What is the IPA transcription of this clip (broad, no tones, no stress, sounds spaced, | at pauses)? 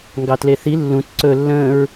ŋ ɡ ɑ t l e θ i lː ũ t ǀ ɵ lː ə̃ː ɹ